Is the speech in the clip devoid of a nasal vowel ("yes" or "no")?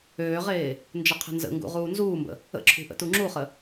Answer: yes